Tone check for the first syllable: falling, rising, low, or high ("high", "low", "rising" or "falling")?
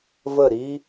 falling